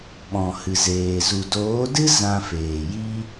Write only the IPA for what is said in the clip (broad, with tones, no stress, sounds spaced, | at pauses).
ɓ ɔ̃˨ h ɨ˨ z eː˨ z u˨ d oː˨˦ d ɨ˦ z ã˧ f eː˨ j i˦